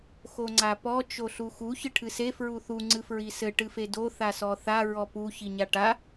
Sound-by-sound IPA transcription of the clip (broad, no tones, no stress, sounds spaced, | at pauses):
x o ŋ͡ǀ a p ɔ t͡ʃ o ɬ u x u ç ɨ ʈʰ ɨ s e f ɹ u θ u ŋ͡ǀ ɨ f ɹ i s ɘ ʈ ɨ f e d o θ a s ɔ θ a ɹ ɔ p u ç i ɲ a ʈ a